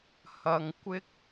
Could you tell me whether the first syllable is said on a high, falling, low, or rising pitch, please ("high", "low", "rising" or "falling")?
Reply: low